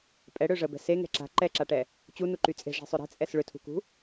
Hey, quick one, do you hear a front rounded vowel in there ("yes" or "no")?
yes